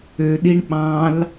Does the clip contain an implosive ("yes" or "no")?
yes